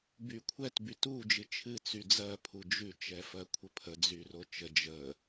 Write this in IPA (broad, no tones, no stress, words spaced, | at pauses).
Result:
bykʷʰɛt bytu d͡ʒɨt͡ʃʰɨ t͡syd͡zɜ pʰud͡ʒʉ t͡ʃɛfɜkʷʰəpʰə d͡zyrot͡ʃə d͡ʒə